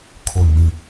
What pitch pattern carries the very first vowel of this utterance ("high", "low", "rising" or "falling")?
low